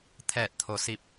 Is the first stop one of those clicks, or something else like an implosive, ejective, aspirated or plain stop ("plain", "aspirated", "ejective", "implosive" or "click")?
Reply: aspirated